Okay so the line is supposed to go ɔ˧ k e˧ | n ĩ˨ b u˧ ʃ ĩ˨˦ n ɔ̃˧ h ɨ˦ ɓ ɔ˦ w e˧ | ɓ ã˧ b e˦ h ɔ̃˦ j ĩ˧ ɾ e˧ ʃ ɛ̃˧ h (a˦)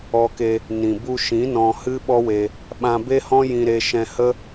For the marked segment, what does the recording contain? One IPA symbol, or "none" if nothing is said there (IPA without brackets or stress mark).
ə˦